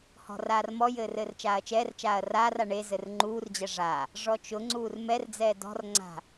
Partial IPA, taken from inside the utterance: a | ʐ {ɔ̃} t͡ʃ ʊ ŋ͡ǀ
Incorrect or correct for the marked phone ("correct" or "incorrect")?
incorrect